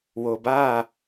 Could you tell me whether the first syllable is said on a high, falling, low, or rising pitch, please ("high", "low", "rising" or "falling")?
low